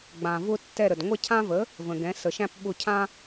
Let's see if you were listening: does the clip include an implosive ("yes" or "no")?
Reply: yes